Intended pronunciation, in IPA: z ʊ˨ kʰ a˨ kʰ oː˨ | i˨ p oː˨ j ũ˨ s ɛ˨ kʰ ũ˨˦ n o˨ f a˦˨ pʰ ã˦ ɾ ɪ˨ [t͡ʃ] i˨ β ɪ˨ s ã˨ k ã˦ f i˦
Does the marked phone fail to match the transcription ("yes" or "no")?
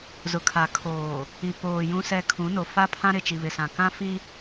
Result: no